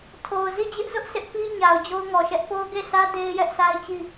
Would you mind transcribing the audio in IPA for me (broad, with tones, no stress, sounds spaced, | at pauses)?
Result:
tʰ o˨ ʊ̯ z i˦˨ d͡ʑ ɪ˦ ʔ z ʊ˦ ʔ sʰ ɪ˦ ʔ p i˦ ɲ a˨ ʊ̯ d͡ʑ o˦ ʊ̯ ŋ ɔ˨ ʃ ɛ˦ ʔ p o˦ ʊ̯ ɡ e˦˨ s ä˦ d e˦ ɪ̯ j ɛ˦ ʔ sʰ a˦ ɪ̯ t͡ɕ i˦˨